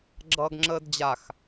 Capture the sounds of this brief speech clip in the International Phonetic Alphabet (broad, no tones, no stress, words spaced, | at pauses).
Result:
ɡ͡ǁʌːɡŋ͡ǁəːdd͡ʑax